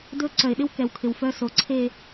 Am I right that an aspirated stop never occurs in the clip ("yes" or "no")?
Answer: no